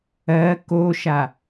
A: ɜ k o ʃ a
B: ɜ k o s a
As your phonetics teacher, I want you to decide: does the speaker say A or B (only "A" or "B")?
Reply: A